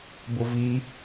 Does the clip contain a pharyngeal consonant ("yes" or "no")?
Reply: no